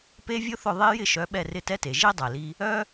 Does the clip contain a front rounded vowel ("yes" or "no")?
yes